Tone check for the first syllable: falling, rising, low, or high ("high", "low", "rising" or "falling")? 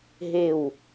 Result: falling